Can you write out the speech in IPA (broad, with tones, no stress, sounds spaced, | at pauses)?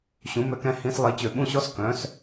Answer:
ɕ ũ˩˧ m ø˩˧ k ɛ̃˧ h ĩ˧ s lˠ i˩˧ t͡ɕ ø˩ ɓ ũ˧ ɕ ɔ˧˥ s k œ̃˩˧ s